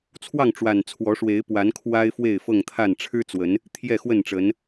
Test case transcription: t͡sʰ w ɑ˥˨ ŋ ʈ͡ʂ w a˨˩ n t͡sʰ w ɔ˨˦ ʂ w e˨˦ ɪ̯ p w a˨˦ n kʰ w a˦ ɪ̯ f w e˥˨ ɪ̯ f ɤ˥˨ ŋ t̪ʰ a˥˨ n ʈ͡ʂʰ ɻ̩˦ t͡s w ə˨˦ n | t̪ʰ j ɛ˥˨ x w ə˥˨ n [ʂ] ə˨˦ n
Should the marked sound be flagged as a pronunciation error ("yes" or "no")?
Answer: yes